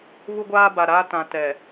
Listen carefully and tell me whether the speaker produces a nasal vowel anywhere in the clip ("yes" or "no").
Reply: yes